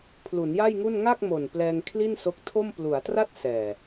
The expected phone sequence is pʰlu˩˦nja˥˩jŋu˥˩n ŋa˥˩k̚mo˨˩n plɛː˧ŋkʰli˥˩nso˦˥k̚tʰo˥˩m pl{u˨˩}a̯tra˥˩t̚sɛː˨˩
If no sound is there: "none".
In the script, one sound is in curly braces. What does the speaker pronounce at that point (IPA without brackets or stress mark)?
u˩˦